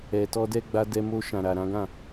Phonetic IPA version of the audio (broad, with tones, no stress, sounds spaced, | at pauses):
ɛ˨ t ɔ˧ d ɛ˧ ɡ͡b a˧ d ɛ˧ m o˧ ʃ ã˨ ɾ a˨ ɾ ã˨˦ ɡ ã˦˨